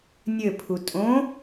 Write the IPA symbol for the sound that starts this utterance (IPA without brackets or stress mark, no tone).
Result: nʲ